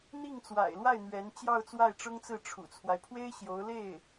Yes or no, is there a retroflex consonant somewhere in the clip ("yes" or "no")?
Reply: yes